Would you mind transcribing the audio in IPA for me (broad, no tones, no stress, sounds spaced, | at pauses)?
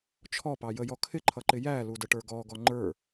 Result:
t͡ʃʰ ɔ p ɑ j ə j ɔ kʰ ɪ ǃʰ ʌ ǃ ɪ j æ l u d ə ʈ ə˞ ɡ ɔ ɡ ɔ ŋ͡ǃ ə˞